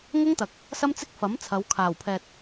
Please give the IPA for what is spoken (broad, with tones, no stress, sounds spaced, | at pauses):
ŋ ʊ˥ ŋ t̪ ɐ˨ k̚ | s ɐ˥ m t͡s ɪ˥ k̚ f ɐ˨˥ m t͡sʰ ɐ˨˧ w kʰ aː˨˩ w pʰ ɛː˨ t̚